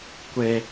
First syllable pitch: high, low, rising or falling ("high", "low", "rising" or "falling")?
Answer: high